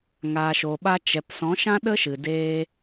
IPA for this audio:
ŋ aː˨ ʃ oː˨ ɓ a˧ t͡ʃ ɛ˨ p s ɔ̃˨˦ ʃ ã˦ ɗ ə˦ ʃ ɨ˨ d eː˧

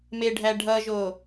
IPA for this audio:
m e ɖʱ æ ɖʱ ʌ ʒ o

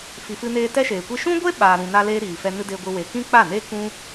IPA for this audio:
f i˨ f ɨ˧ n eː˧ t ɛ˦ ʃ eː˨ kʷ i˦ ʃ ũ˦ ɡʷ e˦ ɓ aː˨ ɾ ũ˨ n a˧ l eː˧ ɾ iː˨ f ɛ˧ n ɨ˧ d e˧ ɡʷ ɨ˧ w e˨ k ĩ˦ k͡p a˦˨ n e˦ k ũ˦

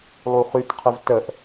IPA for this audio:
lˠ u χ y t qʰ ə v t ə ʔ

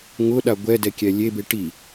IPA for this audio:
ŋ ʊ ɗ a ɡʷ ɛ d ɛ kʲ ɛ lʲ e b e ʈ i

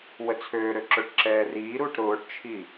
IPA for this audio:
w ə t͡sʰ øː ɾ ø ǁ ø ʈ ǁ ɛː r iː ɾ uː ʈ ɾ ʊː ʈ t͡ʃʰ i

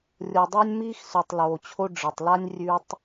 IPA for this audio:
rʲ o˨ dˤ ɐː˧ nʲ m iː˦ x s ʉ˨ tˤ l oː˨ t͡ɕʰ o˧ ɖ͡ʐ ɨ˨ tˤ l a˦ nʲ rʲ ʉ˧ tˤ

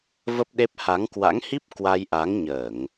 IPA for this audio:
v ə˦˥ p̚ ɗ e˦˥ p̚ h a˨˦ ŋ k w a̰˧˥ ŋ h i˦˥ p̚ k w a˧ j ʔ a˨˦ ŋ ɲ əː˧˩˨ ŋ

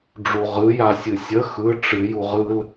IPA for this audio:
ɖ͡ʐ u ʁ ɯ j a sʲ ɨ sʲ ə x ɯ ʈ͡ʂ ɨ j u ʁ ɯ l

